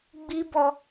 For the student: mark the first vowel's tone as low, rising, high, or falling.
high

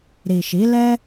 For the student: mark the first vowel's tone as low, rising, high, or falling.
low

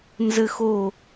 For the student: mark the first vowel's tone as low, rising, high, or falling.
high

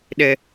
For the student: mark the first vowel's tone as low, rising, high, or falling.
high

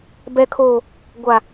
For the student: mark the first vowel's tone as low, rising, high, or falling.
low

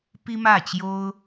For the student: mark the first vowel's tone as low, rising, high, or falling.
high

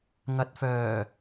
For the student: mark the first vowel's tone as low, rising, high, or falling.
low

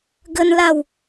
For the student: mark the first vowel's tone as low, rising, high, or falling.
high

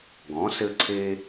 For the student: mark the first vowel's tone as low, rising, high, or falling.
rising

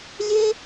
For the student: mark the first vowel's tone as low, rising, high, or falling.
high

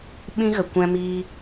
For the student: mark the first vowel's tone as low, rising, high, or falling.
high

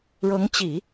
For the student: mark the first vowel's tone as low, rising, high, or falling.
rising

